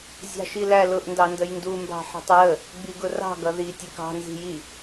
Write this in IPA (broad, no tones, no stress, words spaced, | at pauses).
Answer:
zʲɑ̤ʃilælʊʔ ndɑndəjndu mbɑ̤ħi̤tˤɹə | ɡ͡biɡʊrɑ̤ ɡʌði tʲʊkɑ̤ nzi̤ji